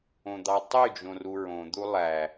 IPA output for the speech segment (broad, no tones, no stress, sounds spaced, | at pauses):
õ d̪ ɑ tˤ y d͡ʒ õ r u ɹ õ d̪ u lˠ æ